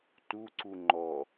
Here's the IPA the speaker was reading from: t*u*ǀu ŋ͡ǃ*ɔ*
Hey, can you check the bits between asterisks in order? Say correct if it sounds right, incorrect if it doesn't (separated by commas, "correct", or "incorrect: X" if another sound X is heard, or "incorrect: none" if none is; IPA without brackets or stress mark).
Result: correct, correct